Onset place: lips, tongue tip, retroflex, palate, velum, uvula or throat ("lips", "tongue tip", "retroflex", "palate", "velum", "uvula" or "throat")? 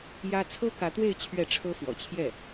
palate